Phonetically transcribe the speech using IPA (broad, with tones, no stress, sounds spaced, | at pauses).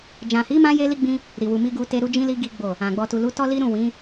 d͡ʒ ã˨ h i˨˦ m ã˧ j e˧ l i˦ ɡ͡b ĩ˦ | ɾ i˨ w u˨ m i˧ ɡ u˧ t e˧ ɾ u˧ d͡ʒ ĩ˧ l i˧ ɡ i˦ ɡ͡b o˦˨ | ã˨ ɡ͡b ɔ˨ t u˨ l u˨˦ t ɔ˦ l i˦ ɾ ũ˦˨ w ĩ˨˦